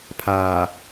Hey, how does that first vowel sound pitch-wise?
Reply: low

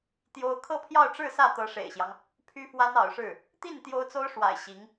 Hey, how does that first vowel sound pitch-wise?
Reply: high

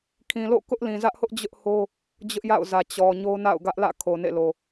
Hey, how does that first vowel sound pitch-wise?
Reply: low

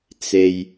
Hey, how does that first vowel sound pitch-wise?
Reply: low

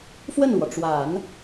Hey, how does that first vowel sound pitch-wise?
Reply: falling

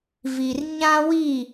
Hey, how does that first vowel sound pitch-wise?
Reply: low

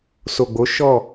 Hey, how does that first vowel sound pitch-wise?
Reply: low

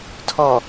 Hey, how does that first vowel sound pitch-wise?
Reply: low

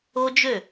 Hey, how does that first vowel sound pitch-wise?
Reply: high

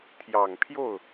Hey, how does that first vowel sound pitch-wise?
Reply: low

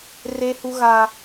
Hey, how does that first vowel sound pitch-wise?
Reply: high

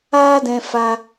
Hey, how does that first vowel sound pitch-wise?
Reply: high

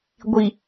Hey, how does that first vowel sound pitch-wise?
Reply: low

